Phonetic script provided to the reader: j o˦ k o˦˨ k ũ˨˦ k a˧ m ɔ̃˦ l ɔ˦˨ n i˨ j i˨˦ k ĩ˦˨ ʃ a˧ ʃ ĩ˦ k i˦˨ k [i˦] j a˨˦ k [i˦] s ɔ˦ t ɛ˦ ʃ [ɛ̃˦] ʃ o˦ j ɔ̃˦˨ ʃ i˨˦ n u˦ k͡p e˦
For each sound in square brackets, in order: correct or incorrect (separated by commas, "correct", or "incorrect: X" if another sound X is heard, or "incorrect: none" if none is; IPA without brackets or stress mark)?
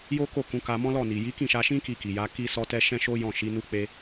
incorrect: i˨, correct, correct